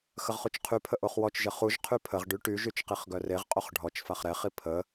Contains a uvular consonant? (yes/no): yes